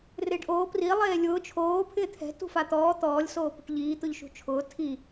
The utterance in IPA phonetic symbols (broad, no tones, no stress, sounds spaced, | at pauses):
r ɪː ɖ ʔ oː p r i lˠ eː lʲ ʊː t͡ʃʰ oː pʰ ɪː t̪ʰ ɛ̤ t ṳ f a t̪ ɔː t̪ ɔː lʲ s oː p ṳ ʈ ʎ iː t̪ ʊ ʎ ʃ ṳ t͡ʃʰ ʊː tʰ i